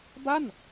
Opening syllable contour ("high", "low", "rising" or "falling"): falling